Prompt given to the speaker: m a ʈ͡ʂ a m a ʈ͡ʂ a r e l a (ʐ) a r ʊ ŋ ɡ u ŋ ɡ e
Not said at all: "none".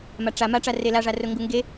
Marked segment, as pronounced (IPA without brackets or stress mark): ʐ